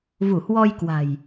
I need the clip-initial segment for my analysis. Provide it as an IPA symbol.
v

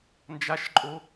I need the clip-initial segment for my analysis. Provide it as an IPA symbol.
n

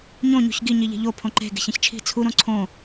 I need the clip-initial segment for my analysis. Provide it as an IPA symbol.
ɲ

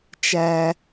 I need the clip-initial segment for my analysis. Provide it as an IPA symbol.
t͡ʃ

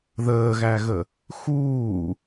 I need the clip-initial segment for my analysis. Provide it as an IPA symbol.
ð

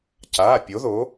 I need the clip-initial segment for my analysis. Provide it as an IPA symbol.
c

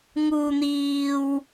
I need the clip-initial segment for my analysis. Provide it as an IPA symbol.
ŋ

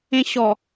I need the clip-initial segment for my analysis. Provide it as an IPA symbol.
ẽ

